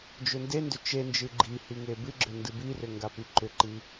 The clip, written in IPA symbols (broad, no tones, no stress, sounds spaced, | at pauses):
d͡ʒ ʏ n d e n d ʏ t͡ʃ e n d͡ʒ ɨ ɡ͡ǃ i h i ŋ e b ɨ ɡ͡ǁ ʏ n d ɨ b i r ʏ ŋ ɡ a p i ǃ ʏ ǃ i